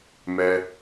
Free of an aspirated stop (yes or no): yes